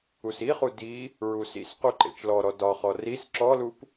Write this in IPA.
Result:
u s i χ u d i | ɹ u s ḭ s q u ǃ ḛ t͡ʃ l ɔ ɾ ɔ d ɒ χ ɔ r i s ǁ ɔ l u p

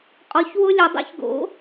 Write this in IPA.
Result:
qʼ ɔ˨˥ ç w ʊ˦ lʲ ʊ˨˩˦ dˤ ḭ˦ ç ɡ o̰˨˥

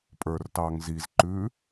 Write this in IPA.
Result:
pʼ ə˞ r t ɑ ŋ z i z ǃ ʉ

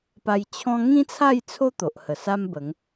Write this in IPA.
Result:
p a˧ j t͡ɕʰ ɔ̃˦ ŋ ĩ˦ t͡sʰ a˥˧ j t͡sʰ o˦ t̪ o˨ ʔ h ə˨˩ s a˦ m b ə˨˦ ŋ

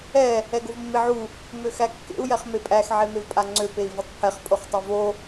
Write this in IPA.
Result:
ɛ | ɛ ɡ o v mː e ʕ u | m ø x æ kː ḛ u̯ j ɛ χ m e pʼ æ x ʕ e m e v pʼ a ŋ͡ǀ ø p e i̯ v o tˤ pʰ ɛ χ pʼ o χ tˤ ø v o

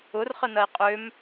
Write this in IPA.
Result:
ʊ r χ ə n ɐ i̯ qʼ ø m

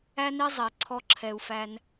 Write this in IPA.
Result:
æ˦ n e˦ zˤ ɛ˩ ǀʰ ɔ˨ ǁʰ ɛ˩ u̯ f æ˨ n

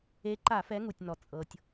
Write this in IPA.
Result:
e˨˦ ǃ a˧˩˧ f ɛ˨˦ ŋ u˩ tʲ n ɔ˩ t͡sʼ ɤ˩ tʲ

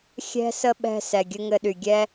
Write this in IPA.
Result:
xʲ ɛ̤˥ s ə˥ ɓ ɛ̤˦ s ɛ˨ ɡʲ ɘ˥ ŋ ɘ˦ ɗ y˨ ɡʲ ɛ˥

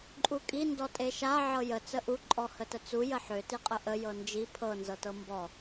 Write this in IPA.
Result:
ǃʼ u kʼ i n d ɔ tʼ e ʃ a ʕ ɤ j ə t͡s ə ʔ u ǃʼ ɔ h ə t ə t͡s u j ə ħ ø t i qʼ ə ʔ ə j ɤ n d͡ʒ i pʰ ɤ n z ɤ t ɤ m b ɔ

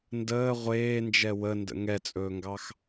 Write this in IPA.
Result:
n d əː ʁʷ eː n d͡ʒ ɛ w ə n d ə̰ ŋ ɛ t͡sʼ ɵː ŋ ɡ ɑ x

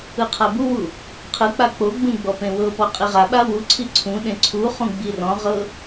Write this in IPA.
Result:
ɯ qʰ a b u w u | qʰ ɯ k͡p a k͡p o ɡ͡b ũ ɡ͡b ɔ p ẽ w ɤ p ɔ qʼ i ʁ a ɓ a w u ǀʰ i ǀʰ ũ ɗ ẽ ǀʰ u χ ũ ɡ͡b i r ɔ̃ ʁ ɤ

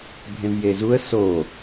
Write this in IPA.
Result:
bʱ ẽ v j e z u ə̯ s o

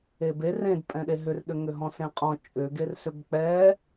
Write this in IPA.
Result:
e b e r ẽ d pʼ ɛ̃ ɗ e ɦ ʏ r ɗ ʏ ŋ ʏ ɦ ɔ̃ s ẽ qʼ ɔ̃ t͡ʃʼ ʏ ɡ e r s ʏ b k͡p ɛ

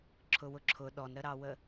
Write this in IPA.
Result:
ǁʰ ʊ w ʊ ǁʰ ʊ ɗ ɔ n ɾ ə ɾ ɑ w ə

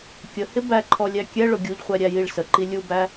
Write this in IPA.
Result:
kʲ ə h ɪ b æ ǃʰ ɔ lʲ æ kʲ ɛ ɭ ʊ ɡʲ u ʎ χʷ ɛ ɾʲ æ j i ɭ s ə ǃ i lʲ u b æ

